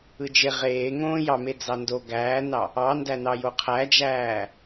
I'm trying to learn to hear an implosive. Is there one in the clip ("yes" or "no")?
no